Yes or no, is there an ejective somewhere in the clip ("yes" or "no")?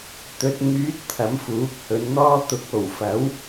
no